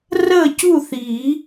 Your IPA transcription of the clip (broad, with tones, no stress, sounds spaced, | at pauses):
r əː˥˨ c u˥˨ θ iː˨˩˦